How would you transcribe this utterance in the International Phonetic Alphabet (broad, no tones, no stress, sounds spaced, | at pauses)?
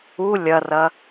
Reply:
u lʲ ɐ r ɐ